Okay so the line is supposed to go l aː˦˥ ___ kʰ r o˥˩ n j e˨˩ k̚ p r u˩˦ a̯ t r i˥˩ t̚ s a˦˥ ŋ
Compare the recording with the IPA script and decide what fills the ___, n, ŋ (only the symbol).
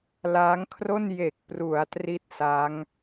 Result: ŋ